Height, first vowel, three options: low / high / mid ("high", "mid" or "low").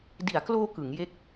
high